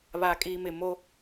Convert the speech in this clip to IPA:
βaː˨kʼiː˨mɪ˨ mo˦

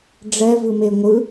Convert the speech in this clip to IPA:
ɖ͡ʐɛvɯme ŋʷɯ

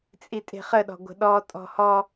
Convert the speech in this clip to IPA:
t͡sʼitʼe̤χəɗɔ̤ ɡʷə̤ɗɔ tʼɔ̤hɔ

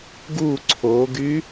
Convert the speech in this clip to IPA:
ɡu ǀʰoɡy

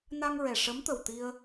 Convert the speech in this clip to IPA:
na˧ŋɹɛ˨˩ ʂə˧˥mt̪ə˨˩wt̪i˧ə̯

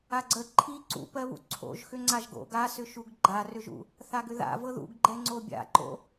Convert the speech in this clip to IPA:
aɡ͡ǀə ǃʰi ǀṵpɜβṵ ǀʰo̰ʒ xʏŋ͡ǀaʒɡo̰ɡ asʏʃuɡ ɡ͡ǃarʏʒṵ | θaɡʏða̰vɤ ðṵɡɡ͡ǃɛ ŋ͡ǀobʲa̰ǃo̰

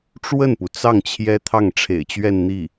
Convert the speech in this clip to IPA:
ʈ͡ʂwə˥˩npu˩t͡sɑ˥˩ŋ t͡ɕʰjɛ˥t̪ʰɑ˥˩ŋ ʈ͡ʂʰḛ˨˩ɪ̯t͡ɕɥɛ˥˧nn̪i˥˩

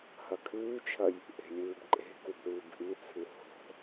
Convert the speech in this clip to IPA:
hɐkʰʉːt͡ʃʰɐj | ʔe̤lʲɨːbǃʼe̤ kubɾɨːbʔit͡sʰɨ ho̤

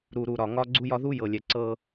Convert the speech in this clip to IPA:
ɾu˨ɾu˨ɾɒ˨ ŋɒ˦ ɡ͡ǀu˦jɒ˦ ðu˦jɤ˨lʲɛ˨ ǀɤ˦

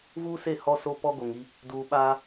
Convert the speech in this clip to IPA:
vuː˦se˦˨ hɔ˦so˦pɔ˦ ɡo˨ŋi˦ | duː˨ɓaː˦

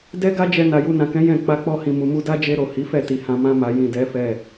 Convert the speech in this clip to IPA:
dɛ˦ɡa˦d͡ʒɛ˧ na˨ju˧nã˨kɛ̃˨˦ jɛ̃˦˨ k͡pa˧k͡pɔ˧hĩ˨ mu˨mu˧da˦ d͡ʒe˧ɾo˨ hi˨˦fɛ˦˨ti˨ hã˧mã˦ma˧ jĩ˨ dɛ˨˦fɛ˦˨

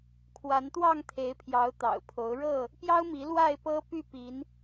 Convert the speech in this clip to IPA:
kʰwa˨˦nt̪wɑ˥˨ŋt̪ʰe˨˦ɪ̯pʰjɑ˨˦ʊ̯ t̪ɑ̰˨˩ʊ̯pʰo˨˦ʊ̯ ɻɤ˥˨ | pjɑ˦ʊ̯mi˨˦ lwa˥˨ɪ̯pɤ˦py˥˨pi˨˦n

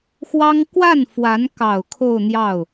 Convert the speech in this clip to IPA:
xwɑ˥ŋ kwa˥˩nfwa˧˥nkɑ˨˩ʊ̯ kʰo˥˧ʊ̯n̪jɑ˥˩ʊ̯

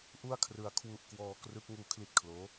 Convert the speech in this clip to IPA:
ʔu˥˩a̯kʰrɯ˧a̯kʰwu˦˥ʔ kwɔː˦˥krɯ˦˥k̚ ŋuː˧kʰli˦˥t̚kʰloː˦˥

